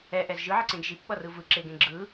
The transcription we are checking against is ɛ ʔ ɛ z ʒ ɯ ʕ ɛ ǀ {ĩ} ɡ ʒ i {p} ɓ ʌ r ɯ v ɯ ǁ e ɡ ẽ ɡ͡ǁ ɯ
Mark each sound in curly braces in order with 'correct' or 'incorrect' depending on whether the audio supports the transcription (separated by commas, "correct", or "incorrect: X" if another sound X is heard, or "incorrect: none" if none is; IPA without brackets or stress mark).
incorrect: ẽ, correct